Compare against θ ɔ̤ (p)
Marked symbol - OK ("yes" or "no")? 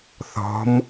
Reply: no